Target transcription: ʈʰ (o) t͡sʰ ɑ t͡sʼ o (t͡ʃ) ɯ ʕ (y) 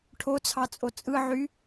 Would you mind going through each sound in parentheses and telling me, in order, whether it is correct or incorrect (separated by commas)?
correct, incorrect, correct